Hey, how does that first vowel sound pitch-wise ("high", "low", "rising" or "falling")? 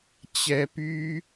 high